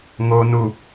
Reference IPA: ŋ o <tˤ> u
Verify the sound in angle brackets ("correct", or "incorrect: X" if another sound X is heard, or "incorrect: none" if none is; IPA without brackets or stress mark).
incorrect: n